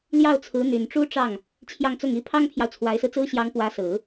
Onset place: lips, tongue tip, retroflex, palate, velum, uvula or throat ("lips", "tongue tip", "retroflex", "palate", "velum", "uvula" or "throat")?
tongue tip